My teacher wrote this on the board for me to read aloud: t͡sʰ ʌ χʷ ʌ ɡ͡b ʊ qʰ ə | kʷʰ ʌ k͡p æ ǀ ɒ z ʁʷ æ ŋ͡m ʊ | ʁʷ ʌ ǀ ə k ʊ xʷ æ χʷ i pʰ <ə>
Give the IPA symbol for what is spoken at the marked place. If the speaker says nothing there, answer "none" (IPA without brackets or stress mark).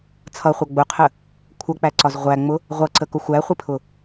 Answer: ʊ